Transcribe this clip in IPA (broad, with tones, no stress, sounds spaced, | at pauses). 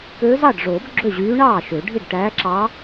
k øː˧˥ z ɑ˥˩ ɖ ʐ oː˨˩˦ b ɡ͡ǁ ø˥˩ ʑ yː˧˥ ɳ ɑː˥˩ ʃ ø˨˩˦ ɖʱ i˥˩ ɖ ʈ æː˧˥ ǁ ɑ˧˥